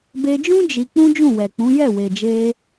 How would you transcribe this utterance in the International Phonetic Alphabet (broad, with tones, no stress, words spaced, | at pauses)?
be˧d͡ʒũ˦ d͡ʒi˧ k͡pũ˦d͡ʒũ˦˨wɛ˨k͡pũ˨˦ jɛ˦˨we˨d͡ʒe˧